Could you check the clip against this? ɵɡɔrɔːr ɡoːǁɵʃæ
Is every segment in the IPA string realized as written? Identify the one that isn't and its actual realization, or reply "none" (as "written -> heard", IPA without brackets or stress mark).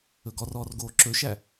none